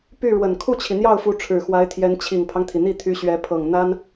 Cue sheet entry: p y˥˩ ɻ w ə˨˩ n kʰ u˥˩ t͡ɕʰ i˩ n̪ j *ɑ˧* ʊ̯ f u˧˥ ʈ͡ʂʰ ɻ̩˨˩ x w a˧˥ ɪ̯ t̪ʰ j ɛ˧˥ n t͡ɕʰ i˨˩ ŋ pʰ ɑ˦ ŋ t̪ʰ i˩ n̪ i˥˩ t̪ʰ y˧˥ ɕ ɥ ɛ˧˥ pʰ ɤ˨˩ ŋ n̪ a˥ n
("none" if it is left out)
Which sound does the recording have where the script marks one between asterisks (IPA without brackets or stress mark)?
ɑ˥˩